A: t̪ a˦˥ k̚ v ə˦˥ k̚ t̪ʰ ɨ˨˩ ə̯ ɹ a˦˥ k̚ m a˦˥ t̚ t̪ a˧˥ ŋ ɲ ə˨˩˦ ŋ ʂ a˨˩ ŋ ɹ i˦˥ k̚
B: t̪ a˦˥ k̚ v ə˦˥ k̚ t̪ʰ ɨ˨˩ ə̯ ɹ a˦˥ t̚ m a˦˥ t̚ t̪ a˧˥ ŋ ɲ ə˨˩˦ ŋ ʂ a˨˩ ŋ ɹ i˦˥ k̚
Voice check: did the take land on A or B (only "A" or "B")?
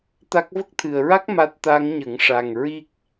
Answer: A